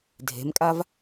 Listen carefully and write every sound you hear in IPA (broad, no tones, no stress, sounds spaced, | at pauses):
dʱ e̤ m kʼ a v